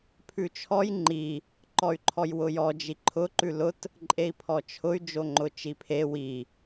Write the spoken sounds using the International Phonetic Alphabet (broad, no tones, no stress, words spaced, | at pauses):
pʰʉt͡ʃʰɔj ŋ͡ǃi | ǃɔy̯ǃʰɔjwʊjɔ d͡ʒiǃʰʊ ǃʉlʊt | ǃʼei̯pʰɔt͡ʃʰʊy̯ d͡ʒoŋ͡ǃʊt͡ʃipʰe wi